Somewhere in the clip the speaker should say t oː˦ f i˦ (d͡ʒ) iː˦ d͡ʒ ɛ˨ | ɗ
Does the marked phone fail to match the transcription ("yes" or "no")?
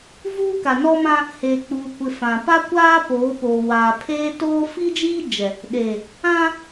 no